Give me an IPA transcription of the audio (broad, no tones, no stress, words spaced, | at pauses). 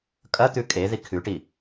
kʼɐt̪ʉ kʼeði kʰʉʈi